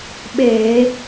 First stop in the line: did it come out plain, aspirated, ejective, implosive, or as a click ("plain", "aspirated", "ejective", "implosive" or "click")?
implosive